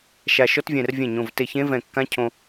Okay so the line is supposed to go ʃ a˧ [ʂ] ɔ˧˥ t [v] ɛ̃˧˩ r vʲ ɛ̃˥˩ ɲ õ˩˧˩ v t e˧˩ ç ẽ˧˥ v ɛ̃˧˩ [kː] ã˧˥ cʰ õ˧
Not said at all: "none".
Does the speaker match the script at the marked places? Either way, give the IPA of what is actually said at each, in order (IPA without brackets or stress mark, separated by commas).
ʃ, vʲ, kː